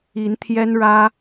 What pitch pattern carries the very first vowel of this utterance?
rising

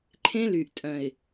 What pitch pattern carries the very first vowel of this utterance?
high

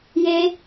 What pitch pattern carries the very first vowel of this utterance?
high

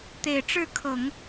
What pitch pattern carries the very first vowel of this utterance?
low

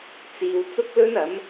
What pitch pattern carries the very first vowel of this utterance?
low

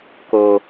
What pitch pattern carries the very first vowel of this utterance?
low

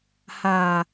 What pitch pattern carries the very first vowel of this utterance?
low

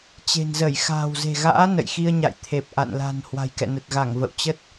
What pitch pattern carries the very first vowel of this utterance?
low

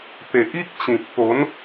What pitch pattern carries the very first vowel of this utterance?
low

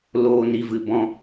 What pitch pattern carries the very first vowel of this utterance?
low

